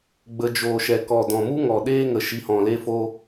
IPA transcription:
ɡ͡b ə˧ d͡ʒ oː˨ ʃ ɛ˨ k ɔ˨ d ɔ̃˨ m u˦ ŋ ɔ˨ ɗ eː˦ ŋ ə˨ ʃ i˧ h ɔ̃˨ l e˦ f o˦

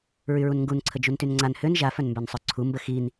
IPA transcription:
ɹ y ɹ u n ŋ ɡ u n ǀʰ ə d͡ʒ u n t y n ŋ͡ǀ a n h ø n ʒ a f œ n m b œ n sˤ œ ǀʰ u m b ə x i n

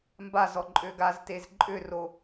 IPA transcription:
m b a z ɔ ǃʼ ø ɡ a z t e z ǃʼ ʏ r o

